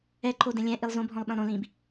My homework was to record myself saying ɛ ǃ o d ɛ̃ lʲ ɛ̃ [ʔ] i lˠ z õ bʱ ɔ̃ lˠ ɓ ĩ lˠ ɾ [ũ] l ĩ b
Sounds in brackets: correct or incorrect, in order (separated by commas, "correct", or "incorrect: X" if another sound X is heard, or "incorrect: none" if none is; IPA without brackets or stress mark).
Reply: correct, incorrect: õ